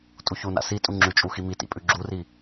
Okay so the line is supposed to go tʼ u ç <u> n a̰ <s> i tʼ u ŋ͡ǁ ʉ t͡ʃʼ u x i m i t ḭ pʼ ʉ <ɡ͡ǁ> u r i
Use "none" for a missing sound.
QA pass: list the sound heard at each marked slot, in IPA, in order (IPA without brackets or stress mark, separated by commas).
u, s, ɡ͡ǁ